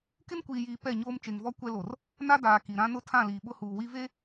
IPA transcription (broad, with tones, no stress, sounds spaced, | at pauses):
k ɪ˦ n kʷ iː˨ j iː˨ p ɛ˦˨ ɲ oː˦ m t͡ʃ e˨ ŋ v ɔ˦ kʷ ɛ˦ l o˨ r | n a˦ d aː˨ k i˨ ɾ ã˦ n ʊ˦ tʰ ã˦˨ l iː˨ ɓ ʊ˦ h uː˨ w i˦ v e˦